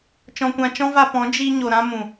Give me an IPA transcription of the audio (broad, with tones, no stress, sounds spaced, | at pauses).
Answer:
t͡ʃ ɔ̃˧ kʷ ã˧ t͡ʃ ɔ̃˦ v a˧ p ɔ̃˨˦ d͡ʒ i˧ ɲ o˨ ɾ ã˧ m ũ˨